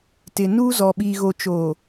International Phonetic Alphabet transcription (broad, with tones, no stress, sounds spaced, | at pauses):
t ɪ˨ n uː˦ z ɔ˨ ɓ iː˨ ɣ o˨ t͡ʃ o˨